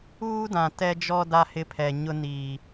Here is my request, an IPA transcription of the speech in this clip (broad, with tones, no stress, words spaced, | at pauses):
uː˦dã˨ tɛ˦d͡ʒɔ˦ da˦hɪ˦˨pʰɛ˨ ɲʊ˦niː˨